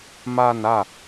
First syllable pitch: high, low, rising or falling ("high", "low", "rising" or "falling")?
falling